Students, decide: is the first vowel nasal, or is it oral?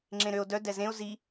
nasal